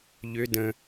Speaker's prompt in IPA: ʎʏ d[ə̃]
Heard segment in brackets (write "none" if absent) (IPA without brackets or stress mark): ə̃